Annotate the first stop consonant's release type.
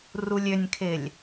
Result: aspirated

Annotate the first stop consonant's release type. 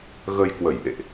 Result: plain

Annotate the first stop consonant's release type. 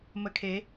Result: aspirated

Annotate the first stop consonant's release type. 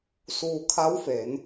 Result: aspirated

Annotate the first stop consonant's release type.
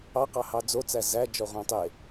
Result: plain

